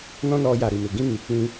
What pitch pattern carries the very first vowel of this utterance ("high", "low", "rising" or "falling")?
high